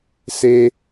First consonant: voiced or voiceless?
voiceless